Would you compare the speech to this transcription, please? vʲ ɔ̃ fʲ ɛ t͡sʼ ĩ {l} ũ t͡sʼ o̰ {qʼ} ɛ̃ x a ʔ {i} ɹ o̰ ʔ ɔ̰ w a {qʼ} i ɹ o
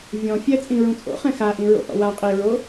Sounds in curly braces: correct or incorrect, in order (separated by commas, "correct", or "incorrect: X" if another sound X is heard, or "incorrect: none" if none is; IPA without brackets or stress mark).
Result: incorrect: ɹ, incorrect: χ, incorrect: ĩ, correct